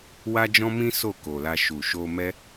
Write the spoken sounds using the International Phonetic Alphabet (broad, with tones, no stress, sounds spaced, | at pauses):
w a˦ d͡ʒ ɔ̃˦ m ĩ˦ s o˦˨ k o˨ l a˧ ʃ u˨ ʃ o˧ m ɛ˦